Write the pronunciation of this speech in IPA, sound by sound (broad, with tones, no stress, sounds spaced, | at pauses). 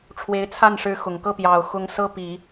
ʈ͡ʂʰ w e˧˥ ɪ̯ t͡sʰ a˥˩ n ʂ ɻ̩˧˥ x ʊ˨˩ ŋ k ɤ˥˩ p j ɑ˨˩ ʊ̯ x ʊ˧˥ ŋ s ɤ˥ p i˨˩˦